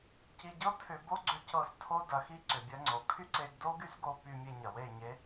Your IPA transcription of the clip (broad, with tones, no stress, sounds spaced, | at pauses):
c i˧ ɟ ɤ˦ tʰ ʏ˦ b o˦ ɡ͡ǀ ʏ˧ c ɤ˧ s tʰ o˦ d ɐ˨˦ x i˦ ǀ ʏ˨ bʲ ɐ˧ ŋ͡ǀ o˨ kʰ y˦ ǀ e˧ ɡ d o˦ ɡ y˦ s ɡ o˧ p y˧ mʲ e˧ ɲ ɐ˨ w e˦˨ ɲ e˦